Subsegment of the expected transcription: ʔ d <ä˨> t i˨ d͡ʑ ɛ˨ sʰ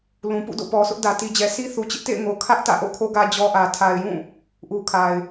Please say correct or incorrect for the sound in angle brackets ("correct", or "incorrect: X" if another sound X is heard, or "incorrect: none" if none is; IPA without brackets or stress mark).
correct